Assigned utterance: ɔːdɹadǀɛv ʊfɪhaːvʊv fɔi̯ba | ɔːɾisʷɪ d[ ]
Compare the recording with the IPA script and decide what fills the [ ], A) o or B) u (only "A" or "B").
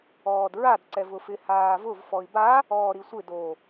A